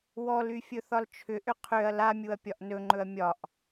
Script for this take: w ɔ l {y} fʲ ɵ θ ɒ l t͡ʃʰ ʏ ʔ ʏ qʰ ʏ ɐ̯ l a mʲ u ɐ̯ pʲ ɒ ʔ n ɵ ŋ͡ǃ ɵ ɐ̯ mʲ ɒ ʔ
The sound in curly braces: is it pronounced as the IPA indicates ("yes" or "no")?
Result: yes